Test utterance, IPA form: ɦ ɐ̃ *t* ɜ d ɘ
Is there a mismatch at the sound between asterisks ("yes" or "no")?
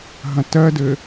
no